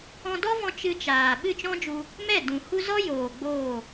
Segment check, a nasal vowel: present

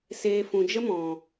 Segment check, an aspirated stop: absent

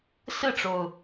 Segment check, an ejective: absent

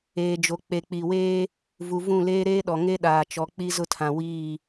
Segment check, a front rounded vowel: absent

